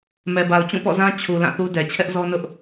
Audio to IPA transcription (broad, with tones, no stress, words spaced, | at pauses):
mɛ˨ba˨ʊ̯ t͡ɕũ˦˨pɔ̰˦˨zã˦ t͡ɕʰu˨ lã˦˨θu˦ dɛ˨ t͡ɕʰɛ˦ʔzɔ˦nʊ˦ʔ